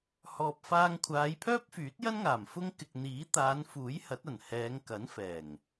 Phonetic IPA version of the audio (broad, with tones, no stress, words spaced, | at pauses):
hɔː˨p̚faː˧ŋkʷʰaː˨˧j pʰœː˥p̚fyː˨˥t̚jɐ˥nŋaː˨˩m fʊ˥ŋ kɪ˨k̚n̪iː˨˥ t̪aː˨˧nfuː˨˥j hɐ˨˥t̚ɐ˨˩nhɛː˨˧ŋ kɐ˨˥nfɛː˨˩ŋ